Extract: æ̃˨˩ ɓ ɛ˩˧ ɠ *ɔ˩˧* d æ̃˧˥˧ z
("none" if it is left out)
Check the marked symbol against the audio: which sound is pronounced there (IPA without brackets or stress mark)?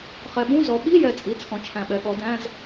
ɔ˩˧